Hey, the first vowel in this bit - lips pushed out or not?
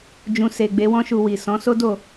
yes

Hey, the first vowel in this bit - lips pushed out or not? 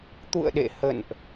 yes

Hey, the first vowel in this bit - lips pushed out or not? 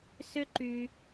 yes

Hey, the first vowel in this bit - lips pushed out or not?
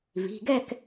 no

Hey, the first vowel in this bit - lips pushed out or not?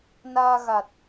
no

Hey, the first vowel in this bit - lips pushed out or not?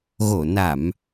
yes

